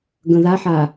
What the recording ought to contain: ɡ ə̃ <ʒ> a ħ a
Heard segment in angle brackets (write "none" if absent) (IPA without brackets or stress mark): ð